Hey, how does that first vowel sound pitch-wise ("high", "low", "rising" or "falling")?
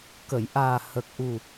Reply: low